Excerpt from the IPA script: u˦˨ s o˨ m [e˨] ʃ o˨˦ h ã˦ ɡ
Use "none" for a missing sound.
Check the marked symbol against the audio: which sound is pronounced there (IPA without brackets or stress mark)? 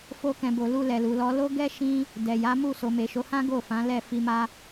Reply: e˨